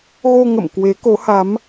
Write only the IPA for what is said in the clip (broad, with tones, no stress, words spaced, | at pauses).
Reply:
ɣo˧ŋə̰˧˨m kwe˨˦ko˨˦ha˨˦m